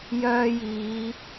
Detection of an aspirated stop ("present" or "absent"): absent